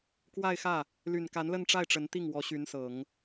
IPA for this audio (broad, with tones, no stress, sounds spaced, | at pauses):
k w a˥˧ ɪ̯ x ä˥˩ | l y˨˩ n k a˧˥ n l ə˥˧ n ʈ͡ʂ a˥˩ ɪ̯ ʈ͡ʂ ə˧˥ n t̪ i˥˩ ŋ w ɔ˧˥ ɕ y˧˥ n s ɤ˨˩˦ ŋ